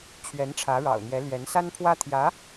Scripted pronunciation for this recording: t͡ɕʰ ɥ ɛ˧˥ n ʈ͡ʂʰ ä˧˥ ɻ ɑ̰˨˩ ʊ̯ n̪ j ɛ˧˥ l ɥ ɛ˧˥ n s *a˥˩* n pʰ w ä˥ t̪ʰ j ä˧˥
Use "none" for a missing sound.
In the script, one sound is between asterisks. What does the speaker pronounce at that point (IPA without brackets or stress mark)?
a˥